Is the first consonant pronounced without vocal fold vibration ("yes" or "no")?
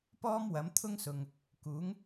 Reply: yes